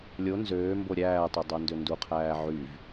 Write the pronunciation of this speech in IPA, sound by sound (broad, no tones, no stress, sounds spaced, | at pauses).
lʲ o n z øː m b o ɾʲ æː tˤ ø dˤ o n d ø n d u qʰ æː ʕ y v